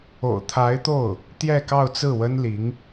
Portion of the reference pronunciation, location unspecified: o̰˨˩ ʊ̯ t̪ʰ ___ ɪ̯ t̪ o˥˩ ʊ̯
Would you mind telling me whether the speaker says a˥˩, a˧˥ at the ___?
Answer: a˧˥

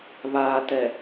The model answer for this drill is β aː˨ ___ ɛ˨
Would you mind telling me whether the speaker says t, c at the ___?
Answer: t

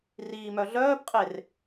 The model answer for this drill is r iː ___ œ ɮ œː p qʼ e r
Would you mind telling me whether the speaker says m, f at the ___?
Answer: m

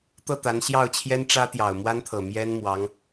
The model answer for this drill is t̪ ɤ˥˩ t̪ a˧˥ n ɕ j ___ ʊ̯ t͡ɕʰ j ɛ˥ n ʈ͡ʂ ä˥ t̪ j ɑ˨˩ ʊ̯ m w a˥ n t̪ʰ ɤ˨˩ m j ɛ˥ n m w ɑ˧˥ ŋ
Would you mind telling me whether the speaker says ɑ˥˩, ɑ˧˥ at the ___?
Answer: ɑ˥˩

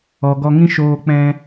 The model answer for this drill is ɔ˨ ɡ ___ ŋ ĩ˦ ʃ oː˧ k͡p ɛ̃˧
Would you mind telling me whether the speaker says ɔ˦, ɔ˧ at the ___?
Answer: ɔ˧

